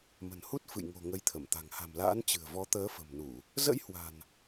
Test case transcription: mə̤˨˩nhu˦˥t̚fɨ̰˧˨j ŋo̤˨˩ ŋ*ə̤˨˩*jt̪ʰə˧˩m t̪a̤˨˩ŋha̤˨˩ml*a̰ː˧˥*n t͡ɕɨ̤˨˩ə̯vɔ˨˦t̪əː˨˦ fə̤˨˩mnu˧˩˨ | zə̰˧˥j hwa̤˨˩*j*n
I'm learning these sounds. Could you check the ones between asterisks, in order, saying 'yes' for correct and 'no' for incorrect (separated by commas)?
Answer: no, yes, no